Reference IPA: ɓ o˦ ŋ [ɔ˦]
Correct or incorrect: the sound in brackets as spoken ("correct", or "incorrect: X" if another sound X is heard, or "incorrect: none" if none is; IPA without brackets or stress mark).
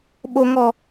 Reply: correct